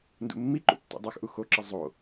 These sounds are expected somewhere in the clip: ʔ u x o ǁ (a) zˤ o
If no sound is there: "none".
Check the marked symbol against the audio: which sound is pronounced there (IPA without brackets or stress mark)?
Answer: ʌ